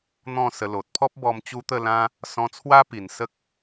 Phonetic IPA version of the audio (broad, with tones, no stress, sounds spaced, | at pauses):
n̪ ɔ̃˥˧ s ə˧ l o˨ t̚ pʰ ɔ˦ p̚ b ɔ˧ m t͡ɕ u˦ t̪ ə˥˧ l ã˦ | s ɔ̃˧ t͡sʰ w a˦ p i˨˩ n s ə˦ k̚